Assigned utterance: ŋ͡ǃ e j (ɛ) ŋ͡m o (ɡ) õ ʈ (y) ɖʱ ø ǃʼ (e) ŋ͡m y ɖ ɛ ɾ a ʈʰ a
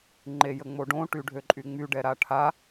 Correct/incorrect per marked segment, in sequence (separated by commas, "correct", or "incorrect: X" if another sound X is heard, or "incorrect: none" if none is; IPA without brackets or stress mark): incorrect: ə, incorrect: ɖ, correct, incorrect: y